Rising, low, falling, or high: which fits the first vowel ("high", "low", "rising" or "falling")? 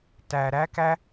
low